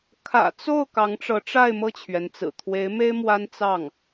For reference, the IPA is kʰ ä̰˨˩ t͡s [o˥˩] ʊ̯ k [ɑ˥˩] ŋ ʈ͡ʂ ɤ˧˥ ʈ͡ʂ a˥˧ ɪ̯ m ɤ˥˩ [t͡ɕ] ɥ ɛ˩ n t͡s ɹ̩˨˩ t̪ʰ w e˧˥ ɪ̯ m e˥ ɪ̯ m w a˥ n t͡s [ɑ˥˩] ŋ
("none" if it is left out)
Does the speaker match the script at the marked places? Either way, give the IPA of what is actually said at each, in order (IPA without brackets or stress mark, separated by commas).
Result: o˥˩, ɑ˧˥, t͡ɕʰ, ɑ˥˩